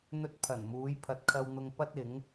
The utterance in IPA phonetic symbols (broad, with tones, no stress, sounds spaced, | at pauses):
n̪ ɵ˧ t̚ pʰ ɐ˨˩ n m uː˨˧ j pʰ ɐ˨ t̚ kʰ ɐ˧ w n̪ ʊ˧ ŋ p ɐ˥ t̚ ɪ˨˥ ŋ